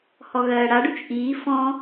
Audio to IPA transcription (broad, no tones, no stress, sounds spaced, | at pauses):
h ɔ ɣ ɜː ɽ a ɖ ʉ t͡ʃ ʔ iː f ɔ̃